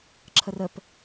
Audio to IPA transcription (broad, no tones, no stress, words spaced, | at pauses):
ǁʰərəp